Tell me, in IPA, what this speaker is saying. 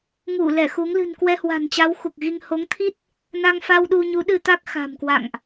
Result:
ŋ u˧˩ l ɛ˧˩ x u˨˦ ŋ l ɨ̤˨˩ n k w ɛ˧ h w a̤˨˩ n t͡ɕ a˨˦ w x u˨˩ k̚ ɣ i˧ ŋ h o˨˦ ŋ t̪ʰ i˦˥ t̚ | n a˧ ŋ f a˧ w ɗ u˧ ɲ u˨˦ ɗ ɨ˧ t̪ a˦˥ k̚ x a̤˨˩ m k w a̰˧˨ ŋ ʔ

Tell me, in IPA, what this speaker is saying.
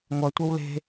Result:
ŋʷ ɐ tʷ ɐ w l e̤

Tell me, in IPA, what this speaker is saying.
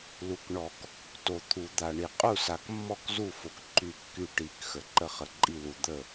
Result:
l u˨˩ k ɳ ɔ˨˩˦ k | t o˨˩ t̪ʰ u˨˩˦ d̪ a˨˩ ɳ i˨˩ qʼ u˥˩ s a˨˩ k mː ɔ˥˩ k z u˥˩ f o˨˩ k ǃ y˥˩ kː y˥˩ ʈ i˨˩˦ k x ə˨˩˦ ǃ ə˥˩ χ ə˨˩ ǃʼ i˥˩ l u˨˩ d̪ ə˥˩

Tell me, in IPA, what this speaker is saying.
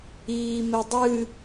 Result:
iː m e dˤ ɨː

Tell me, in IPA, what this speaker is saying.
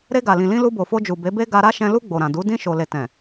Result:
ɾ e˧ ɡ a˨ l ĩ˨ l ĩ˧ l u˧ b o˨ f o˧ d͡ʒ u˨ b e˨˦ b e˦ ɡ a˧ ɾ a˦ ʃ ɛ̃˧ l u˧ ɡ͡b o˨ ɾ ã˨ d u˨˦ d ĩ˧ ʃ o˨ l e˨ t ɛ̃˨

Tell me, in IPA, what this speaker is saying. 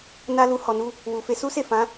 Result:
n a˧ l u˧ h ɔ˨ n u˧ | w u˨ f e˨˦ s u˦ s e˦˨ f ã˨˦

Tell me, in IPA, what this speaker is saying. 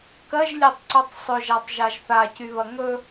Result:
k ɜ ʒ lʲ ɜ tˤ ǀ ɜ tˤ sˤ ɵ ʒ a tˤ ʒ a ʒ θ a c y β ɐ ŋ ɵ

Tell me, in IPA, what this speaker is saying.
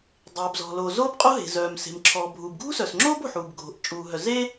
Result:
dˤ eː˩ b z ɔ̤˩ l oː˩ z oː˥ b qʼ o˥ ɦ e̤˩ z œː˩ m s e̤˩ m ǁʰ ɔː˩ bʱ uː˩ b ɡʱ ṳ˥ s œ˩ s ŋ͡ǁ oː˥ b o̤˩ ħ uː˩ b ɡʱ o̤˩ ʔ t͡ʃʼ uː˩ ɦ œ˩ z e˥

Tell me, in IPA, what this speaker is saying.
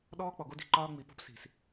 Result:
ɗ ɔː˦ k͡p ɔ˨ ɡ o˦ d i̤˨ ǃ ɒː˦ ŋ͡m i˨ p o̤˦ p s i̤˨ s

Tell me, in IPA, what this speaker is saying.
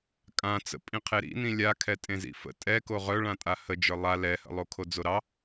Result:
kʼ ã t͡s ə̰ pʼ ĩ qʰ e ɾ ḭ n ĩ lʲ a kʰ ɛ tʼ ẽ z ḭ f ə̰ tʼ ɛ k o ʁ œ ɭ ã tʼ a h ə d͡ʒ ə˞ lˠ a l ɛ h ə̰ lˠ o kʰ o d͡z o ɾ ɑ

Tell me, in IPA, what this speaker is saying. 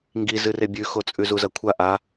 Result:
ŋ ɡ i z ɨ r e bʲ ʉ x o t͡sʼ ʉ z u z ɐ kʷʰ a ʔ a

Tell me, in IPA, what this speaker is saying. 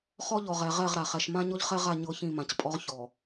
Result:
χ ɔ˦ ʎ ɔ˨ ʁ ɛ˨ ʁ ɛ˦˨ ʁ ɾ a˨ χ ɛ˨ ʃ m ã˦ ɲ ɔ˦ ʎ χ ɛ˦ ʁ a˦˨ ɲ ɤ˦˨ ç ĩ˦˨ m ã˨ c pʼ ɔ˦ ʁ ç ɔ˨

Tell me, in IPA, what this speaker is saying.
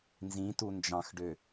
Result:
n z ĩ t u n d͡ʒ ɑ̃ x ɖ ø

